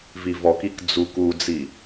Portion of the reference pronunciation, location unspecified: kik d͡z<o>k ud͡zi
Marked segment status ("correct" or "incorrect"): incorrect